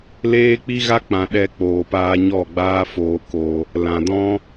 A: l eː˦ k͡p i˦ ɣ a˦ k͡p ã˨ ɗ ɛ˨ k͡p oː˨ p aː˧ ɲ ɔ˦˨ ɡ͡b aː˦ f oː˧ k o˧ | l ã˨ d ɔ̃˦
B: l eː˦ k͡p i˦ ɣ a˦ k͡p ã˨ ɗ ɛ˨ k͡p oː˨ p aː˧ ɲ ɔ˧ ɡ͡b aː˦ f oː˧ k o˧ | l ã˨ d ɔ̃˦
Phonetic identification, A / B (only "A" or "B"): A